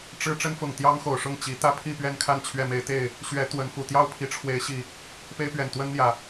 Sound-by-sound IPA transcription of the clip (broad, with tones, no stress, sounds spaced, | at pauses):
ʈ͡ʂ ɻ̩˦ ʈ͡ʂ ə˦ n f ʊ˨˩ ŋ t̪ j ɑ˦ ŋ x o˨˩ ʊ̯ ʂ ʊ˥˨ ŋ t͡ɕ i˨˦ t̪ ä˦ pʰ i˥˨ p ɥ ɛ˥˨ n kʰ a˥˨ n t͡ɕʰ ɥ ɛ˥˨ m e˦ ɪ̯ t̪ e˥˨ ɪ̯ | ɕ ɥ ɛ˨˦ t̪ w ə˨˦ n f u˨˩ t̪ j ɑ˥˨ ʊ̯ pʰ i˨˦ ʈ͡ʂʰ w e˨˦ ɪ̯ ɕ i˨˩ | p e˦ ɪ̯ p ɥ ɛ˨˩ n t̪ w ə˦ n n̪ j ä˨˩